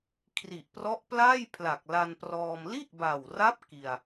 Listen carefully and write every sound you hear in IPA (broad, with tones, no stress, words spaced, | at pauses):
kʰri˨˩ʔprɔ˦˥ʔplaː˥˩j pʰla˨˩k̚la˧nprɔː˧m li˥˩ʔba˨˩wra˦˥p̚ ki˧a̯